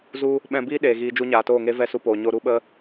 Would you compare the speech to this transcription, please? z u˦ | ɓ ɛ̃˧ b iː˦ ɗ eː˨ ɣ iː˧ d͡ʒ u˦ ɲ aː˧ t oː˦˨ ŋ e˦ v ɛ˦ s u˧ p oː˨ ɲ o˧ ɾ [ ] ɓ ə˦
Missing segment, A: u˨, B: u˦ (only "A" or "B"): B